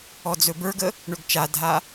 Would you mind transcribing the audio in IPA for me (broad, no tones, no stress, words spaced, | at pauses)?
ɔd͡zɵbə˞ɡə | ɳɵɡt͡ʃadʱa